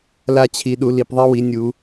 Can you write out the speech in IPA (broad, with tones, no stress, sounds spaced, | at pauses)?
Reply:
l a˦ t͡ɕʰ i˨˦ ɗ u˨˦ l i˨˦ p ðˤ i˦ w i˨˦ nʲ u˨˦